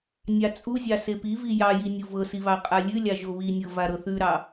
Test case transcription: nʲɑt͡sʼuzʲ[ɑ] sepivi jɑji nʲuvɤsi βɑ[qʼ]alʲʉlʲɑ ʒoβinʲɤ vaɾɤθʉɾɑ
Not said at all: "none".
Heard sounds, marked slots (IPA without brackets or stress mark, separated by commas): ɑ, qʼ